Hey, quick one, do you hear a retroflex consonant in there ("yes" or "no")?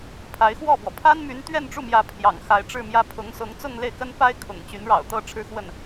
yes